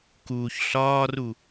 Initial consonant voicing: voiceless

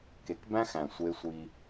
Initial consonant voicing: voiceless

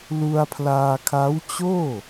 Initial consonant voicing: voiced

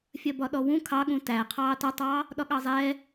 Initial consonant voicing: voiceless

